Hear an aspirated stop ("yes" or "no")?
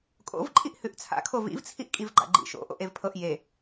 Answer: yes